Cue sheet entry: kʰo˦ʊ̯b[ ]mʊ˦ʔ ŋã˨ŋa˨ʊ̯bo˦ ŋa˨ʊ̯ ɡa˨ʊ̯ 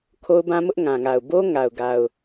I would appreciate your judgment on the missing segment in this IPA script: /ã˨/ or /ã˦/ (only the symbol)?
ã˦